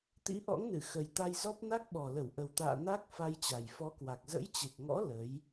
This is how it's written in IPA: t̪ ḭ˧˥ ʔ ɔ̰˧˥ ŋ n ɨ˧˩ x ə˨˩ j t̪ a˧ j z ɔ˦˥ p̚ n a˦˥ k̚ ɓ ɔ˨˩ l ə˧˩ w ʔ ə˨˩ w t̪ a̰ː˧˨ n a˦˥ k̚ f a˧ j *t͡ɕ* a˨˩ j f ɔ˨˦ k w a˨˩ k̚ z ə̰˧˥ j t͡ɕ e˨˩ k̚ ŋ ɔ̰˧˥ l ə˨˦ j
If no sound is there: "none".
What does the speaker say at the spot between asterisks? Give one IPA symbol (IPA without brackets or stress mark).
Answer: t͡ɕ